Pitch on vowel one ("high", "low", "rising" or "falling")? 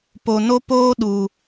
low